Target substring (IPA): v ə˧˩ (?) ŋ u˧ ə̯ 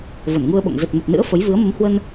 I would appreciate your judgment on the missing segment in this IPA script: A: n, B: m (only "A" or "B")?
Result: A